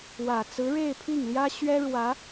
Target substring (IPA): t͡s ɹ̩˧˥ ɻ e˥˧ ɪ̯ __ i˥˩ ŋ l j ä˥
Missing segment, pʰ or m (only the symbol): pʰ